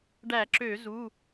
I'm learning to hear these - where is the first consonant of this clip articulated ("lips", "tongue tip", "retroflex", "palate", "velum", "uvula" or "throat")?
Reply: retroflex